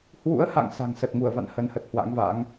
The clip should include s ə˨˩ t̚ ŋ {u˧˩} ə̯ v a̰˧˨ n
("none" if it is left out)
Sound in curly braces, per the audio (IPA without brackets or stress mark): u˧˩